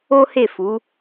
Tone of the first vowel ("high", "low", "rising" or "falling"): high